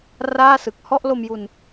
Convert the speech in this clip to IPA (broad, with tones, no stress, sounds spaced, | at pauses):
r aː˥˩ s ɯ˨˩ k̚ h ɔ˥˩ ʔ l o˧ m j u˧ n